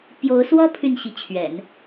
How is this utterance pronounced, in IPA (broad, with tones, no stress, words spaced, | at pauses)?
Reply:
pjo˧˥ʊ̯swɔ˥ pʰy˥˩nɕi˧˥ t͡ɕʰɥɛ̰˨˩˦n